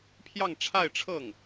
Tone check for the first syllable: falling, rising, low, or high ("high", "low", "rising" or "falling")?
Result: falling